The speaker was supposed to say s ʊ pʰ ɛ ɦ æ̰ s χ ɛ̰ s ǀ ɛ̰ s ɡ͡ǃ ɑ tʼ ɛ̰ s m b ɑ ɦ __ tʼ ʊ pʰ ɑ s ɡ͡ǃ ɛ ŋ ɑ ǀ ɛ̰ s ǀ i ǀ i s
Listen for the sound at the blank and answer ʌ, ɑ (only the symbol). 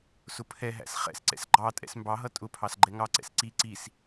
ʌ